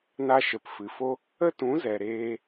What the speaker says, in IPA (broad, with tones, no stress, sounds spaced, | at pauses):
n a˧ ʃ ə˨ p f ɨ˨ f o˧ | ə˦ t ũ˨˦ z ɛ˨ ɾ eː˧